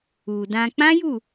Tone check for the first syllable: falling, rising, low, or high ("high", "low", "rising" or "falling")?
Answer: low